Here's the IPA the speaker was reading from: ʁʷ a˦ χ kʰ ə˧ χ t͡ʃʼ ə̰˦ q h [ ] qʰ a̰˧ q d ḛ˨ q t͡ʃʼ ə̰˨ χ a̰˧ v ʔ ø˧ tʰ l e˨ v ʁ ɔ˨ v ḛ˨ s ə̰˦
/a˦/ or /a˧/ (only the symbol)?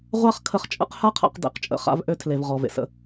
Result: a˦